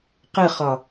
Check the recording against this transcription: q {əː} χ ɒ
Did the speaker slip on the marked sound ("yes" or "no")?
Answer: yes